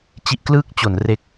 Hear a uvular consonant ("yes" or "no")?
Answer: no